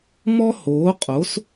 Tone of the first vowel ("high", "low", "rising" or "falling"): high